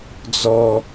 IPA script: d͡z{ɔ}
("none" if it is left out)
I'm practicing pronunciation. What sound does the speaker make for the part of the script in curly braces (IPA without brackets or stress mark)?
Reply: ɔ